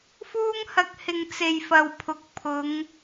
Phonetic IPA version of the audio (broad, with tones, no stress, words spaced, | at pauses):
fuː˥ŋhɐ˧k̚hɪ˨ŋ t͡se˨jfɐ˨wpʰʊ˨˥k̚ pʰʊ˨˧ŋ